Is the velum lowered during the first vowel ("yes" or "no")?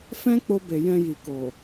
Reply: yes